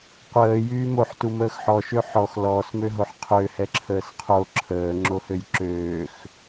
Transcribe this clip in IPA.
qʷ əː j yː m o ħ t u m əː x ħ ɔ ʃ ø ħ ɔ x l ɔː s m ø ɦ o ħ qʰ ø h ɛ ǁʰ əː s qʰ o ǁʰ əː ŋ͡ǁ o h ø j ǁ øː x

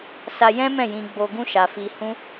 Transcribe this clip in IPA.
s a˧ j ɛ̃˦ m ɛ̃˦˨ j ĩ˧ ɡ͡b o˧ ɡ ũ˦ ʃ a˧ f i˧ h ũ˦

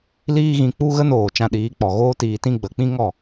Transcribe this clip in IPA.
l iː˦ ɣ ĩ˧ k͡p u˧ ɣ ə˧ n oː˨ t͡ʃ ã˧ ɗ iː˨˦ k͡p ɔ˨ ɣ oː˦ t iː˧ t ĩ˦ ɡ͡b ə˨ k͡p ĩ˦ ŋ ɔ˦˨

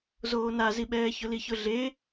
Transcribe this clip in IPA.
z oː n a z i ɓ ɛː ç ʊ l i ç ʊ ɮ e

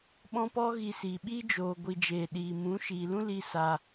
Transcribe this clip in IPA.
ɓ ɔ̃˧ p ɔ˧ ɣ i˨ s iː˨ ɓ iː˦ d͡ʒ oː˨ ɡʷ i˨ d͡ʒ eː˨ ɗ iː˨ m ũ˨˦ ʃ iː˨ l ũ˦ l i˦ s a˧

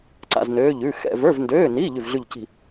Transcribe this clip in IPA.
ǀ a̰˥˧ z n øː˧˥˧ ʎ ʉː˧˥˧ x ɛ̰˥˧ v ə˞˧˥˧ v n d øː˧˥˧ n iː˧˥˧ ʎ ʉ˥˧ v ɮ ʉ˥˧ ʎ c i̤˥˧

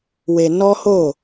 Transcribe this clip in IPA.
w e˧ n ɔ˦ h o˦˨

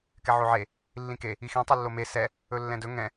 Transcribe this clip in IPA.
k ɛ ʕ o ʕ e | lː ĩ k e | i x ĩ tˤ u lː o m e s ɛ | ɵ lː ɛ̃ d ɵ ŋ ɛ̃

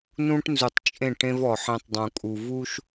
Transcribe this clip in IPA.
n ũ˦ ʈ n z u˨ tˤ t͡ʃʼ ẽ˦˨ ʈ ẽ˦ v ɔ˨ ħ ẽ˦ tˤ dˤ ũ˨ kʼ u˨ v u˦ ʃ

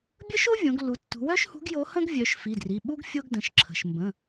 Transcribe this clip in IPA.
bʲ ə˥ ʃ o˥ vʲ õ˩˧ ɡ lː u˩˧ tː ṳ˩˧ w œ˥ ʃ h ṳ˧˥ ɡ j o˧˥ h ə̃˥ ɡ vʲ œ˩˧ ʃ f i˩˧˩ d r i˩˧˩ ɓ u˥ ɡ fʲ o˥ ɡ d ə̃˩˧˩ ʃ ǁʰ ə̤˩˧˩ ʃ m b ə̃˩˧˩

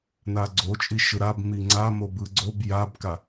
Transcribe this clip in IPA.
n a ɡ͡ǀ o t͡ʃʼ i ʃ ɯ ɾ a b m i ŋ͡ǀ a m o b ɯ ɡ͡ǀ o b j a b k a

